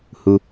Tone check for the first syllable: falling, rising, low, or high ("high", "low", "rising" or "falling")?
low